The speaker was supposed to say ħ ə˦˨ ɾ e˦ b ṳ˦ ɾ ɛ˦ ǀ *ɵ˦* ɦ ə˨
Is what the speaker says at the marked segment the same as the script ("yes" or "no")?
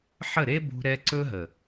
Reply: yes